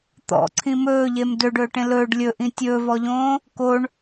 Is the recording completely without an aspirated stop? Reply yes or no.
no